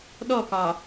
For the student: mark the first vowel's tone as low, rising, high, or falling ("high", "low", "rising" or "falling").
falling